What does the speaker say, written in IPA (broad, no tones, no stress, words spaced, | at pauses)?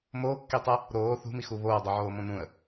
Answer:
moːkːitˤɛ | ɾoː θṳmixu βoːdˤuʕoː mõnũə̯